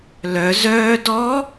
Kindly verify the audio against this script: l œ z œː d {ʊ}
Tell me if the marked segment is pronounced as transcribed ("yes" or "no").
no